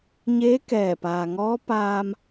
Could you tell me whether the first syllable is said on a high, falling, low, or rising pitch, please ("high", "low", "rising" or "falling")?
rising